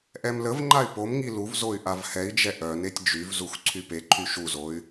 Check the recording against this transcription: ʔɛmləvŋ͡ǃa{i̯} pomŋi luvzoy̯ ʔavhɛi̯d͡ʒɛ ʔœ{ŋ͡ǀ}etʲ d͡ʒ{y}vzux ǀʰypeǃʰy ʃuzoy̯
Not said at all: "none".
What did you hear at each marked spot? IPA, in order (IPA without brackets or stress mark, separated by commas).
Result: y̯, n, y